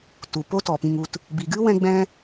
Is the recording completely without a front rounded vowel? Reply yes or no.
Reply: yes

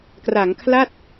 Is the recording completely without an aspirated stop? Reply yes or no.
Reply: no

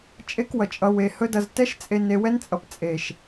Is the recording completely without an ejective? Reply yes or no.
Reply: no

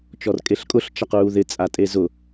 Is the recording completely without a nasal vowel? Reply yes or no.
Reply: yes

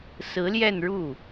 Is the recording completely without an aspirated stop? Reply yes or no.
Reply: yes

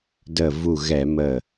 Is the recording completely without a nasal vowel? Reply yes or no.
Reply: yes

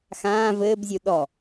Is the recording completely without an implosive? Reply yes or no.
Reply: no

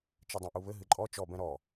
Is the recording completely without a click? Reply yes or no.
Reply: no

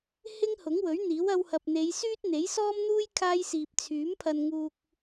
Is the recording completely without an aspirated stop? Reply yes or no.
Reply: no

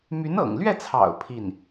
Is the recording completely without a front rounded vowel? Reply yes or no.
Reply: no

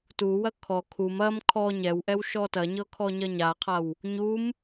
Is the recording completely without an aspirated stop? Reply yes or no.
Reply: no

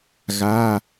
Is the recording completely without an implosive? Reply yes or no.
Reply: yes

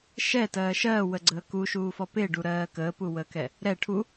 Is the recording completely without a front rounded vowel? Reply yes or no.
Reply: yes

